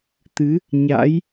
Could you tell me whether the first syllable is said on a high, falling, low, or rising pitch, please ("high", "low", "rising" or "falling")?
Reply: rising